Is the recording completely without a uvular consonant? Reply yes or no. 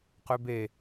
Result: no